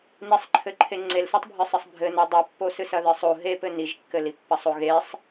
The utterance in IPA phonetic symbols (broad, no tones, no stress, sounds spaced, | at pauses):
n i sˤ ǃʰ ɘ ǃʰ e ŋ͡ǀ e l s i tˤ bʱ ɨ sˤ ɘ sˤ bʱ ɘ n o dˤ ɨ pː o s ɨ s ɐ ð ɨ sˤ o ɦ e p ɘ n i ʒ kː ɘ l i pː ɐ sˤ o ɣ e sˤ